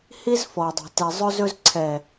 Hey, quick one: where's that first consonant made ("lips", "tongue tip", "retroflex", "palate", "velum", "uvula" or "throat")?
throat